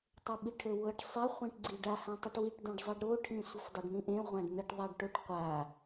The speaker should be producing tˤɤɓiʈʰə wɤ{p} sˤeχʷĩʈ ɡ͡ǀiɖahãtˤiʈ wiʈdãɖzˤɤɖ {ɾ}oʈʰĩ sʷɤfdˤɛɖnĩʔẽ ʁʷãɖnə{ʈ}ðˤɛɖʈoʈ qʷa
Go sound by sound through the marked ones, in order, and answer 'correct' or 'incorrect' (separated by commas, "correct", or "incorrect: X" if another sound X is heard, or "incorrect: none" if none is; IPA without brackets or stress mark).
incorrect: ʈ, correct, correct